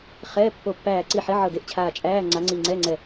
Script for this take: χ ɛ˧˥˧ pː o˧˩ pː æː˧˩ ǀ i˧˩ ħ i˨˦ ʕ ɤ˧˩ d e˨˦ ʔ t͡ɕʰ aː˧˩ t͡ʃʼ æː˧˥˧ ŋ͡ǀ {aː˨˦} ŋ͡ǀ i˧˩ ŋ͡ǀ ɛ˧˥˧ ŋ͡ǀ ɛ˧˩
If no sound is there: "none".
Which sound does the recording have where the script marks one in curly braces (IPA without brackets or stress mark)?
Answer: a˨˦